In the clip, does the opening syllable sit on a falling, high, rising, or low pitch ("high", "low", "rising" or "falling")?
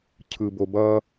low